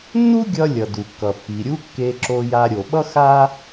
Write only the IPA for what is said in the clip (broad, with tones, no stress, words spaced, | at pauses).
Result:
nːu˥ɡʲʌ˧ lʲʌ˩du˩kːʌ˩ pːi˩ɾʲu˥ kːe˧ǁo˧ja˧ ɾʲo˩ɓʌ˥ xa˥